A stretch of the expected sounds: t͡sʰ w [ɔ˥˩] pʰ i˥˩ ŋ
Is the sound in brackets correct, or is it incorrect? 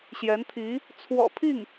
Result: incorrect